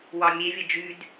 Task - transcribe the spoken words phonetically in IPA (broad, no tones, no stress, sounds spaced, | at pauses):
w ɑ mʲ e vʲ ə d͡ʒ y d